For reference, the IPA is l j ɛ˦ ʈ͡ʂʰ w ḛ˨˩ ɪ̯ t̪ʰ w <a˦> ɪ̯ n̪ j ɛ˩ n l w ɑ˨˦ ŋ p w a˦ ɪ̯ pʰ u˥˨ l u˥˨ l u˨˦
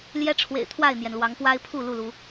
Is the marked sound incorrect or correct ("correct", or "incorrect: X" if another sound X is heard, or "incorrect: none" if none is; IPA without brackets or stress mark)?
incorrect: a˥˨